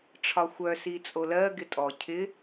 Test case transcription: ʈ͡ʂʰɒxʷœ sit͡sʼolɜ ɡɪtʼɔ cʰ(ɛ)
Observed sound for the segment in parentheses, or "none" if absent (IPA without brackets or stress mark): ɪ